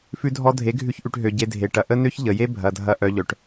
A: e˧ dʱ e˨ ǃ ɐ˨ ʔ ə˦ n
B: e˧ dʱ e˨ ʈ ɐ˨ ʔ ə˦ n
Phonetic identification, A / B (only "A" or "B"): B